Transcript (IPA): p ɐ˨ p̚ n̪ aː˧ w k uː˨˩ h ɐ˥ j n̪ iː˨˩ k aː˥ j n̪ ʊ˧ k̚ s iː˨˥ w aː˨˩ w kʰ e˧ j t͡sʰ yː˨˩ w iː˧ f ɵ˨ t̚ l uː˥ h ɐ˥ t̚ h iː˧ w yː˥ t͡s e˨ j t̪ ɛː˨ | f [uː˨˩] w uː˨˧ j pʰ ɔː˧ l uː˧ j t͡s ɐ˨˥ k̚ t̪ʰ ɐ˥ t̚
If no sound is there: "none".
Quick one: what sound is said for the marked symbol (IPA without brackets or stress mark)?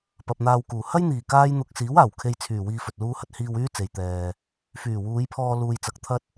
yː˨˩